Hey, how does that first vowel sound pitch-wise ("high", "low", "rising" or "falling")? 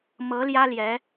rising